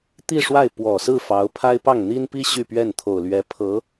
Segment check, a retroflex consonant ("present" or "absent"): present